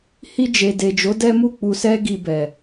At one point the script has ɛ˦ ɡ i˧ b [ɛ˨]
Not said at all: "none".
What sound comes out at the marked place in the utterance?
ɛ˨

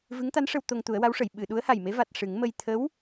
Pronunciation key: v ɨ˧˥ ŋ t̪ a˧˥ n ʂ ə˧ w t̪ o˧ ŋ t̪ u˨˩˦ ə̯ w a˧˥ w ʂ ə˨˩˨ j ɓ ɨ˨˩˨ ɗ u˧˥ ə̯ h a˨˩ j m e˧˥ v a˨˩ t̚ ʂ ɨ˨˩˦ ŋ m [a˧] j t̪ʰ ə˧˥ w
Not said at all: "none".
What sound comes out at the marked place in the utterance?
ə˧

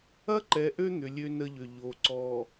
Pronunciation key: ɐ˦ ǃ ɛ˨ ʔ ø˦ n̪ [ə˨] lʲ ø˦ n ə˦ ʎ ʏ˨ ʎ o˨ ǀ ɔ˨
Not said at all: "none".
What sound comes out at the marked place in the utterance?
ʏ˨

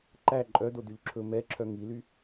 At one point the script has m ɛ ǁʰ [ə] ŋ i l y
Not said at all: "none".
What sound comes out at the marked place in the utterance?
œ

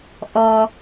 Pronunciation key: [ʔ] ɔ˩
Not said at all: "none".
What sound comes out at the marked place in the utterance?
ʔ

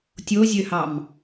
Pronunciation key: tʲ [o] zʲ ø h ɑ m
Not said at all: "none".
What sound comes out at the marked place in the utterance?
o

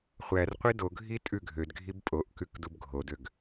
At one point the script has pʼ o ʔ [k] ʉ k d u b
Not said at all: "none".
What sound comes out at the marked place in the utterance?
k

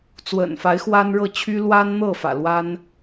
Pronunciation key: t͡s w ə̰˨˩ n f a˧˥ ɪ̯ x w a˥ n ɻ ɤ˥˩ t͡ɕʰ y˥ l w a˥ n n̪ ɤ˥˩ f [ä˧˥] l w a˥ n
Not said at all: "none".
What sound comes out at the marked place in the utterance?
ä̰˨˩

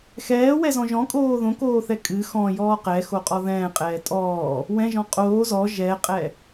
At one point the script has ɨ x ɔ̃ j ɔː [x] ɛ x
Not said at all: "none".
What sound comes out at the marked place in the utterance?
q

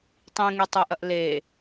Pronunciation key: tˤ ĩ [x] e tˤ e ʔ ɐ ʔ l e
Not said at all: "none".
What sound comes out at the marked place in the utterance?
ŋ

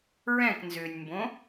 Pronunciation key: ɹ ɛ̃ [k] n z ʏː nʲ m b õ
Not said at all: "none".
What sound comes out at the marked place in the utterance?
k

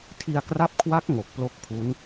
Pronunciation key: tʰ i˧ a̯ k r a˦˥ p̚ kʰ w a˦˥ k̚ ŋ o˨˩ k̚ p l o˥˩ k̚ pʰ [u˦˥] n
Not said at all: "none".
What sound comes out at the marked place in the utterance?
u˦˥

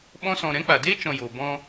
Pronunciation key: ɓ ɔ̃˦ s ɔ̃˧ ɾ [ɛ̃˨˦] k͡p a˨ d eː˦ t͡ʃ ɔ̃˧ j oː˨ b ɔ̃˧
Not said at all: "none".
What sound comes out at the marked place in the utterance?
ɛ̃˨˦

